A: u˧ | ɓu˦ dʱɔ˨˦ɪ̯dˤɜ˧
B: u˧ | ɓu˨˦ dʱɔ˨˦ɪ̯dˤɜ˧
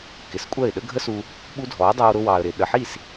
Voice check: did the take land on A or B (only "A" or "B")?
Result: A